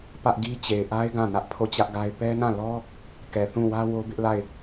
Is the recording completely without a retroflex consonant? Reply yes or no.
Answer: yes